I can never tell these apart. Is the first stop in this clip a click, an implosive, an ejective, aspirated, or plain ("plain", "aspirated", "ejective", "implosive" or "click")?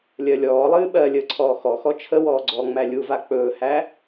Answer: implosive